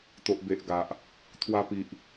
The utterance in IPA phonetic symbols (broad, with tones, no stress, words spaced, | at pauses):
t̪o˨ʔ be˨ʔɡa˨ʔ | t̪ʰwa˧pi˨ʔ